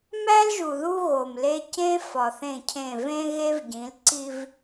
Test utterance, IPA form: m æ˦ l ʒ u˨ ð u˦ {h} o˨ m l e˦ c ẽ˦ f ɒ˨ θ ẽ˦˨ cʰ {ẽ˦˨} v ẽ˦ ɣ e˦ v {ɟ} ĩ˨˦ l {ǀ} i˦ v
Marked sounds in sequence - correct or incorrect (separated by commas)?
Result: incorrect, correct, correct, correct